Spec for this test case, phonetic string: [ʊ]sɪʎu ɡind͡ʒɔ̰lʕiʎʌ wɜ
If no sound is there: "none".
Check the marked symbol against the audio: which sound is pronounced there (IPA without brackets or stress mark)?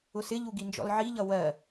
ʊ